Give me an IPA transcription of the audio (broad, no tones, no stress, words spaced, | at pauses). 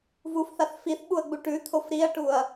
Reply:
vufθaθ fiθɓuɐ̯ɡ͡bu ʈʉt̪ʰof ɾiɐ̯ʈuɐ̯